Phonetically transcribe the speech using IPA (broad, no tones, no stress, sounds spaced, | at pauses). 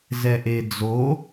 z ɛ ʔ e d͡z o